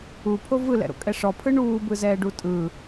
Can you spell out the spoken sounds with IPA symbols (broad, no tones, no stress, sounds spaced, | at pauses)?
u pʰ o v ɯ l ɛ̰ ɾ o̰ kʼ ɛ ʂ ɔ pʰ ɯ ɳ uː b ɯ z ɛː ɖ u tʼ ɯ